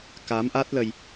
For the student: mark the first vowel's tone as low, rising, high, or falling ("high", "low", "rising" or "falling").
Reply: rising